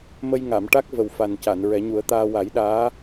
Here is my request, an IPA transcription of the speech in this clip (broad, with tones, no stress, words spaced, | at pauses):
mə˧jŋa˨˩˨m ʈa˦˥k̚ və˨˩wfa˨˩nca˨˩˨n ɹɛ˨˩˦ɲu˨˩˦ə̯t̪aː˧ wa˨˩˦j ɗaː˧˥